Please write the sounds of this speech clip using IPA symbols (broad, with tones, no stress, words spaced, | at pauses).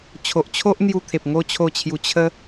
t͡ɕʰo˨ʔt͡ɕʰo˦ʔn̪ju˧ t̪ʰe˨p̚ŋo˥˧ t͡ɕʰo˥˧t͡ɕʰju˧ t͡ɕʰə˦